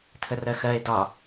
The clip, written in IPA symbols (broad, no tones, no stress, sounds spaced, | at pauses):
tʰ ə r ɜ x ɜ e̯ d ɒ